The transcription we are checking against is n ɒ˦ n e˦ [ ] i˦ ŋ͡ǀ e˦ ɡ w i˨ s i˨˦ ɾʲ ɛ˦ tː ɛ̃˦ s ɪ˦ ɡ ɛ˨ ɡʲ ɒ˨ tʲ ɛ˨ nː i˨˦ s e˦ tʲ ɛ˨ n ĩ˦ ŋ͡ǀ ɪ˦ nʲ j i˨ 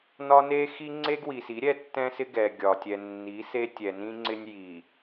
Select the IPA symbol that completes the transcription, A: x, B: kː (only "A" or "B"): A